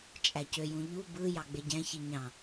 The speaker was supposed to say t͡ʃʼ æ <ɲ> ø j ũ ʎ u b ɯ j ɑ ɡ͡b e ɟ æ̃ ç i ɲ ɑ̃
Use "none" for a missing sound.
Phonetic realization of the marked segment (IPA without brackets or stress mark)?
c